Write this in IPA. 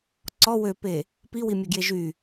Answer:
ǀɔ wøpe | piwimʲɔɡje ʒy

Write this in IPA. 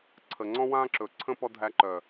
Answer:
ǀʰə˨ŋ͡ǀɔ̃˦wã˦ǁɵ˨ ǀʰə̃˦ pɔ˧ dʱæ˧ǃœ˨

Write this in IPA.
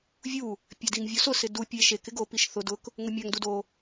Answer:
vʲu | pʲadiŋvʲosʊ sɪdu pʲe ʃek ɪɡo piʃθʊ dʊk | ŋʊmʲaŋ dudo

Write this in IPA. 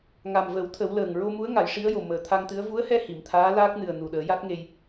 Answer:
ŋa˨˩mvə˨˩˦w t̪ʰə˨˩˦wləː˨˩ŋ ɹo˧mu˧˥ə̯ ŋa˨˩˦jʂi˧˥ə̯jo˨˩ məː˨˩t̪ʰa˧ŋt̪ɨ˧˥ə̯ vu˧˥ə̯hɛ˧ hi˨˩˨mt̪ʰaː˧˥laː˦˥k̚nɨ˨˩ə̯ nu˨˩ɗəː˨˩˦ja˦˥t̚ŋe˧j

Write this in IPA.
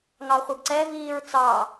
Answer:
ŋɑχʷʌɡǀɛviːɹ t͡sɑ

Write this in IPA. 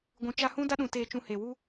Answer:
ɡʷũ˨t͡ʃa˧hũ˦ da˦ɗũ˨ teː˧t͡ʃũ˧he˨ wu˦

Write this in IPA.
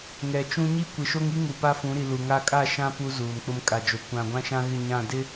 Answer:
ŋɛ˨t͡ʃũ˦ ɲi˦kʷɪ˨ʃo˦ŋi˦ ŋu˨pa˦fũ˨˦ɾi˨ lu˨ŋa˦ kʼa˦˨ʃã˦ pu˦zuː˨nk͡pʊ˦m kʼa˨d͡ʒo˨ kʷã˨ɡʷã˦ʃã˦ɣɪ˦˨ ɲã˦˨dɪ˦

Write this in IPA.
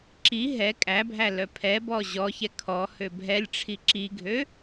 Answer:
ǁi ɦɛ kʼæbʱæ lœpʰɛbɔ ʑɔçɛ kʰɔ høbʱɛlʲʈ͡ʂʰi ǁiɡʱø

